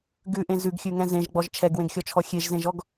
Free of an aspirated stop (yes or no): no